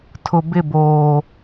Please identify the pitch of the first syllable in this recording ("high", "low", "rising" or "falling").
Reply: low